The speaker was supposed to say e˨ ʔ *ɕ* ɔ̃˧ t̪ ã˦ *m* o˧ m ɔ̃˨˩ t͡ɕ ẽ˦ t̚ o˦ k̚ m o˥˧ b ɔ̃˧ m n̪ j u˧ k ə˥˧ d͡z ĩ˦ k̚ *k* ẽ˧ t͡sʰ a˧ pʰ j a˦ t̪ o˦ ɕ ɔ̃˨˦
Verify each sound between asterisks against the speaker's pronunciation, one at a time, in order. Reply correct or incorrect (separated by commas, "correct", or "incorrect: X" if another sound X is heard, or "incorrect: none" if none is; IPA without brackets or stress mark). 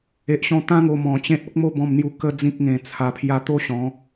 correct, incorrect: ŋ, incorrect: ŋ